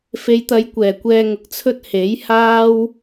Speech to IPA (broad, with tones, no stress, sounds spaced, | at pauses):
f e˨˧ j t̪ ɐ˨˧ j kʷ ɛː˨˩ kʷ ɛː˧ ŋ ʊ˨ k̚ t͡sʰ ɵ˥ t̚ h e˨˥ j h aː˥ w